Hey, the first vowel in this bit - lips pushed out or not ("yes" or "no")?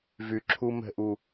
yes